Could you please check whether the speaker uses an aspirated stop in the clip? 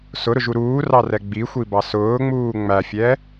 no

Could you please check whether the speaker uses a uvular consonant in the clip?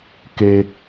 no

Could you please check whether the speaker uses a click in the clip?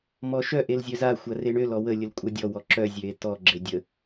yes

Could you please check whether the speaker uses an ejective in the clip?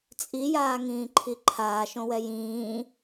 yes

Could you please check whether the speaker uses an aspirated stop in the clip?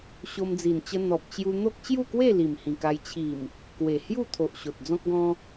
yes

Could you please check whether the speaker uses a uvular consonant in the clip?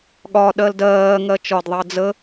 no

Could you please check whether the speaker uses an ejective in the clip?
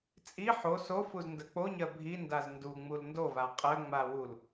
yes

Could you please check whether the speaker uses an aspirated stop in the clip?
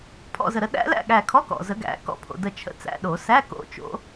yes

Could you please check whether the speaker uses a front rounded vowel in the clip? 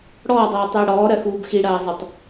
yes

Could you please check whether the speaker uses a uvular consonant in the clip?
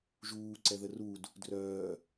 no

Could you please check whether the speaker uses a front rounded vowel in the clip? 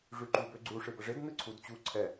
yes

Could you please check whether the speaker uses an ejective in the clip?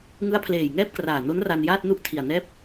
no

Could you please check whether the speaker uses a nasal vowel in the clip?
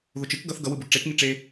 no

